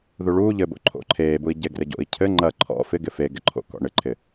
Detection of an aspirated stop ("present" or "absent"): present